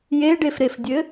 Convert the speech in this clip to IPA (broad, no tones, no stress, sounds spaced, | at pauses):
j e ɖ e f ɾ e f dʲ ɘ